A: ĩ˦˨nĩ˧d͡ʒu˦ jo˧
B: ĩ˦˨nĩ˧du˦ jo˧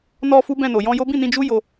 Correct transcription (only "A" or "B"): A